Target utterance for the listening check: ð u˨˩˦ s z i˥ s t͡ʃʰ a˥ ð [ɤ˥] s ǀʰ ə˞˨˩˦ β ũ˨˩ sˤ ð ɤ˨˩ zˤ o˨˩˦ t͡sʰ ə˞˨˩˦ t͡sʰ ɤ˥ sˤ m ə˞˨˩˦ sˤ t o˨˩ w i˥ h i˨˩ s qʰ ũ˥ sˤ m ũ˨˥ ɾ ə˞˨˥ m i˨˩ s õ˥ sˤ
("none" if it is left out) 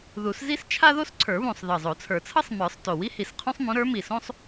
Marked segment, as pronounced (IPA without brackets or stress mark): o˥